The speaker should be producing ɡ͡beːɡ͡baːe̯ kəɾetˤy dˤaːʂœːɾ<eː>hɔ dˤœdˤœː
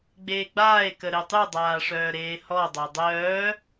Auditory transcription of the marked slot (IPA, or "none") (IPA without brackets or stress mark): eː